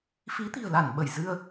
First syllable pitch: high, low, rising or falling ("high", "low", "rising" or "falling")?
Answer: rising